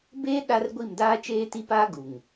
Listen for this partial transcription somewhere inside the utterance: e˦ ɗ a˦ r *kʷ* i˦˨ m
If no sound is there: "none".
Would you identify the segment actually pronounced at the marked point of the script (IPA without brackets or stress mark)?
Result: ɡʷ